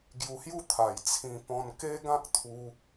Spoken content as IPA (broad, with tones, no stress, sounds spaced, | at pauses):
ɡ j u˧ h j u˥˧ t̪ʰ a˨˩ j t͡sʰ ĩ˧ p ɔ̃˧ n k e˦ ɡ ã˦ k̚ t̪ʰ u˧